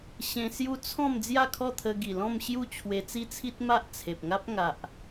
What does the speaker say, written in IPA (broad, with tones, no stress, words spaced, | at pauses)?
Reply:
ɕẽ˧sju˦ t͡sʰɔ̃˥˧m d͡zja˥˧kʰɔ˥˧t̪ʰə˧ ɡi˨˩lɔ̃˥˧mɕju˥˧ t͡ɕʰwe˧t͡si˦t͡sʰi˦t̚ ma˦ʔt͡sʰe˨p̚ ŋa˦p̚ ŋa˨ʔ